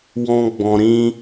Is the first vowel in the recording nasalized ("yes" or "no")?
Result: yes